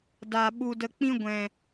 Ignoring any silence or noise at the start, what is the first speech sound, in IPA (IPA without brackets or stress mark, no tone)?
d